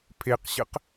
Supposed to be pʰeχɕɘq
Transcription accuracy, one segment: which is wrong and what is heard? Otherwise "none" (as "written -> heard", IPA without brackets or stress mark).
χ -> q